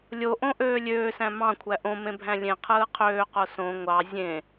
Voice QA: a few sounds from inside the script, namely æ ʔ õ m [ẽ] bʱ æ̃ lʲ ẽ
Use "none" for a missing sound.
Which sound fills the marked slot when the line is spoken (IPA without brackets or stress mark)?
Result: ẽ